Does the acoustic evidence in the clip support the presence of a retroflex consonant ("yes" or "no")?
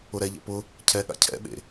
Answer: no